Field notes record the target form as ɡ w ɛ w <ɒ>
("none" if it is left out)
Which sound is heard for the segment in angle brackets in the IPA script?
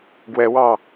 ɑ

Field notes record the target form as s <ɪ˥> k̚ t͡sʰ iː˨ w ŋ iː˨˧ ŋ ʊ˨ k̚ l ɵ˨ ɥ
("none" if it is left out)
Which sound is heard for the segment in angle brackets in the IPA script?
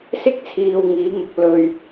ɪ˥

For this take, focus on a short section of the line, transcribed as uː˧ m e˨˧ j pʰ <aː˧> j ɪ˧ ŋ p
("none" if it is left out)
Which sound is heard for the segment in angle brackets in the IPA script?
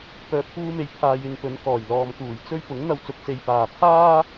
aː˧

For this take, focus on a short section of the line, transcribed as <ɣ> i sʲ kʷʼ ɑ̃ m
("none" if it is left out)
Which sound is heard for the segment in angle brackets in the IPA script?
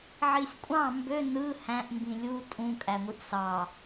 ʕ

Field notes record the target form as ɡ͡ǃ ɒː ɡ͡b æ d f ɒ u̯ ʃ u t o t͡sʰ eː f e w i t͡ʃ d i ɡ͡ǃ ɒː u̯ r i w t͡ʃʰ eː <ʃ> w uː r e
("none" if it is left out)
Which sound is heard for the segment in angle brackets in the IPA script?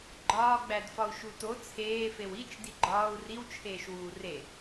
ʃ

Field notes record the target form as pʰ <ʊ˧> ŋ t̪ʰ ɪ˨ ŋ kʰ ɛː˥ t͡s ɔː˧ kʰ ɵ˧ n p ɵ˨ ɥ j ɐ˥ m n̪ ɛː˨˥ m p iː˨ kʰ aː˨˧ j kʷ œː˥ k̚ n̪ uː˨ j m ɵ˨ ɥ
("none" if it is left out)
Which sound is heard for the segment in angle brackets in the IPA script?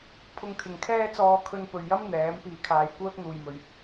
ʊ˧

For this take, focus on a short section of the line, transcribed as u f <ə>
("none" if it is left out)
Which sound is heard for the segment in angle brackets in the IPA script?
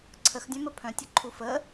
ə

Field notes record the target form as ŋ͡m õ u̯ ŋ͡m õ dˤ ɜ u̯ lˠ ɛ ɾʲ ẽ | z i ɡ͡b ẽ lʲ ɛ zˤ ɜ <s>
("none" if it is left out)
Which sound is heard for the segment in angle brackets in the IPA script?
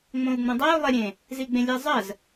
z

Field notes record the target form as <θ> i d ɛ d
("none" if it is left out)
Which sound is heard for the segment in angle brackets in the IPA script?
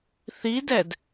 θ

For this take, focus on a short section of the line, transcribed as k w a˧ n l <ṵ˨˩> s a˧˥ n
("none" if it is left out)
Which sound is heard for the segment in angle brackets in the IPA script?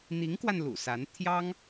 ṵ˨˩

